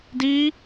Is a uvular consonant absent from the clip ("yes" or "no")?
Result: yes